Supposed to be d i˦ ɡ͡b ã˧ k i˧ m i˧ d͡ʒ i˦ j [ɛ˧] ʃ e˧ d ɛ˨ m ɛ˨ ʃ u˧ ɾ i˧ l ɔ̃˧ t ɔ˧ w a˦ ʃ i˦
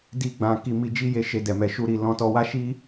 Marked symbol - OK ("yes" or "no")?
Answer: no